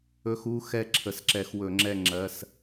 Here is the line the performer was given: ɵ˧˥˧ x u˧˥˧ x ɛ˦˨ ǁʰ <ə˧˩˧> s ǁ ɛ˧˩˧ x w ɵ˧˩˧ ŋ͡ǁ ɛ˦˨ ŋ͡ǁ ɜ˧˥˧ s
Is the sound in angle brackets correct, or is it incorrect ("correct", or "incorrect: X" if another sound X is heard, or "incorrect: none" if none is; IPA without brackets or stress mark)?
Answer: correct